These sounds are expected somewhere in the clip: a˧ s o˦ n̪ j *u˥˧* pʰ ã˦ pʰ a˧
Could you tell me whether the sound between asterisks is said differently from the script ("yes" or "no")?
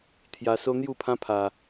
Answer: no